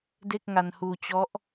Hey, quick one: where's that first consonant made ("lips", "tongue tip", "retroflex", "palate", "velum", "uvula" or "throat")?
tongue tip